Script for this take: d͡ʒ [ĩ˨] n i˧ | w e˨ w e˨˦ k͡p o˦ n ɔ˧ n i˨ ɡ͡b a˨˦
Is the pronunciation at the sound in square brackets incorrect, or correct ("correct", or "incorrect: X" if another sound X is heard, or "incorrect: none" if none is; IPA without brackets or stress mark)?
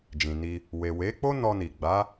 correct